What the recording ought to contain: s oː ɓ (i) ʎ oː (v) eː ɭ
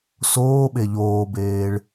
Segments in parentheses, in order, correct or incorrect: incorrect, incorrect

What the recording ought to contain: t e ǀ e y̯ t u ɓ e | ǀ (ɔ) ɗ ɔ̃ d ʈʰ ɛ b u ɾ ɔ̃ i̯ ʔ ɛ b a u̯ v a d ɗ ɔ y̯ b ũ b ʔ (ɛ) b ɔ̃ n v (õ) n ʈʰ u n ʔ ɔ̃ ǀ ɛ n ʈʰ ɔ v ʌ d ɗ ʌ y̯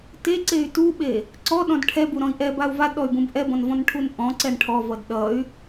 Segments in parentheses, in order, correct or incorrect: correct, correct, incorrect

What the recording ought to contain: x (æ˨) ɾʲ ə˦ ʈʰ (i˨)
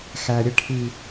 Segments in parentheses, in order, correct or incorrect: correct, correct

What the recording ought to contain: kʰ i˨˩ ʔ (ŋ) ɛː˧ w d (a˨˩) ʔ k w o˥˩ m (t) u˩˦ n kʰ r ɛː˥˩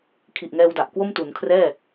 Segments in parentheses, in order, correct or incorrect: correct, correct, correct

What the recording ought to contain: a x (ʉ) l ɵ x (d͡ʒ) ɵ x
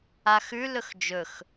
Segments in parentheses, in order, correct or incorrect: correct, correct

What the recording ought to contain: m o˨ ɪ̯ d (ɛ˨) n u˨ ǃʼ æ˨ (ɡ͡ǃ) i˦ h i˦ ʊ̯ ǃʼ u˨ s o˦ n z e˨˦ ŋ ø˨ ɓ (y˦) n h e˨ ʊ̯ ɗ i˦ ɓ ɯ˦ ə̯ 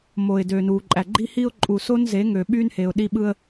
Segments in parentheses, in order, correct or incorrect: incorrect, correct, correct

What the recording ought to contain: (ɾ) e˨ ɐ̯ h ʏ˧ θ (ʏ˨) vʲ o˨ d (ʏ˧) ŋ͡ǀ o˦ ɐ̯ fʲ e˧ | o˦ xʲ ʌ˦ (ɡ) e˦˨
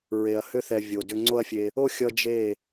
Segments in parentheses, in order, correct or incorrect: incorrect, incorrect, correct, incorrect

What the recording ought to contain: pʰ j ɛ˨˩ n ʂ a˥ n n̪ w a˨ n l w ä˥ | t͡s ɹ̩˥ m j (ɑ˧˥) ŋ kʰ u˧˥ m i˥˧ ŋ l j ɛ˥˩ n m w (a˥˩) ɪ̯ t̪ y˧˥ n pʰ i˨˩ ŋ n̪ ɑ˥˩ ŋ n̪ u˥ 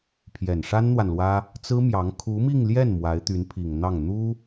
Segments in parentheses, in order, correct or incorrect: correct, incorrect

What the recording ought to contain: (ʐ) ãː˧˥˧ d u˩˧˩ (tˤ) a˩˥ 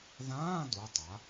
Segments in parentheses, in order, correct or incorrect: incorrect, correct

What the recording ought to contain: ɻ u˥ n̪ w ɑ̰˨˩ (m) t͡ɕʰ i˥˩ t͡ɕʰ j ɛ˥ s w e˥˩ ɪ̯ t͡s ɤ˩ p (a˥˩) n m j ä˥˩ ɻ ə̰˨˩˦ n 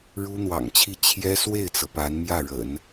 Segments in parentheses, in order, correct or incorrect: incorrect, incorrect

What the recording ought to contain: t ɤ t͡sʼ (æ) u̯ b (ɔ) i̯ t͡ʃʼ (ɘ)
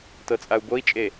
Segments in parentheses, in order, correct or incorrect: incorrect, incorrect, incorrect

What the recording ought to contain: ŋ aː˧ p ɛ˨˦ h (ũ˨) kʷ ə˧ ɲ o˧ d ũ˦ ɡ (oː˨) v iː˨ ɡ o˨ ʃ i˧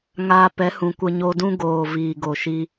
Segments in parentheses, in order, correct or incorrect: correct, correct

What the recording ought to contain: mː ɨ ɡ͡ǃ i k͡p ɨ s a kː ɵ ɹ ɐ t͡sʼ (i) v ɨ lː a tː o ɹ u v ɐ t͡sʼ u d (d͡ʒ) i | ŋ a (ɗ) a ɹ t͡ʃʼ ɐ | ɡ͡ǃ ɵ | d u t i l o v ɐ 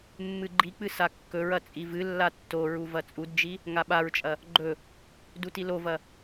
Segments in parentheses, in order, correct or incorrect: correct, correct, incorrect

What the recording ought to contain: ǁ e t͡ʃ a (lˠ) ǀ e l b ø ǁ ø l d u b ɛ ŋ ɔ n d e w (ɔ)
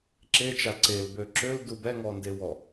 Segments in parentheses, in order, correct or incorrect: incorrect, correct

